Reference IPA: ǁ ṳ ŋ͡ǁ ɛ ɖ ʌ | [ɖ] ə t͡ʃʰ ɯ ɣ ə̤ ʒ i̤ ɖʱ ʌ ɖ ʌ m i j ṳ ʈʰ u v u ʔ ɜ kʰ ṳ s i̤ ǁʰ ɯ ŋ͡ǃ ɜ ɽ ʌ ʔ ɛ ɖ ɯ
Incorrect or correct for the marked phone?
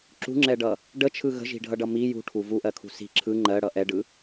correct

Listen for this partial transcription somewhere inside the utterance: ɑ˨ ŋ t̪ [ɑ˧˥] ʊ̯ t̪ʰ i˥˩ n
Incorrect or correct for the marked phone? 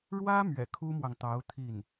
correct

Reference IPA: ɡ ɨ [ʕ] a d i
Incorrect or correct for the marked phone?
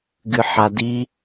incorrect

